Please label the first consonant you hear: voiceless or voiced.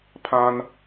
voiceless